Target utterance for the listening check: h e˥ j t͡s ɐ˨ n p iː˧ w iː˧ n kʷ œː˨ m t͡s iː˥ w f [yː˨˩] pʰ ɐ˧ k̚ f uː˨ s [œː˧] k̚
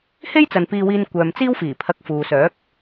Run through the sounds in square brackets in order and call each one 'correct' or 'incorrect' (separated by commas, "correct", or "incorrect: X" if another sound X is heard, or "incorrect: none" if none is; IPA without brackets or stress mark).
incorrect: iː˨˩, incorrect: œː˨˥